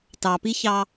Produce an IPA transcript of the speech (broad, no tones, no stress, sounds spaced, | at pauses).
t ɑ p i ç ɑ